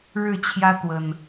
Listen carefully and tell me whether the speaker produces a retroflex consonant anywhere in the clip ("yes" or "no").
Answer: yes